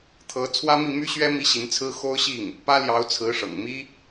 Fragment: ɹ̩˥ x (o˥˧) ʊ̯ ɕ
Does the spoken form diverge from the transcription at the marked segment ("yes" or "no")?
yes